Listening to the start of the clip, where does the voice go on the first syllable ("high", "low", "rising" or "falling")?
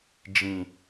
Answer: high